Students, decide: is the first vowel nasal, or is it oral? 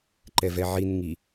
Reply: oral